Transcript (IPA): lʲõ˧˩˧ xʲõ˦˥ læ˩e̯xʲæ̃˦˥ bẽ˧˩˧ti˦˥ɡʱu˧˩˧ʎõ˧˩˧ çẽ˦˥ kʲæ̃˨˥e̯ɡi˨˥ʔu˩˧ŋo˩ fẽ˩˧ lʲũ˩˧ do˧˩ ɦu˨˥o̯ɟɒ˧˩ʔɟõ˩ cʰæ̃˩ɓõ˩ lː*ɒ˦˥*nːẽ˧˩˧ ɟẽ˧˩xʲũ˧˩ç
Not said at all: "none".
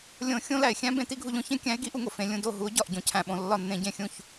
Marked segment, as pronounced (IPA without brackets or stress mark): ɒ˧˩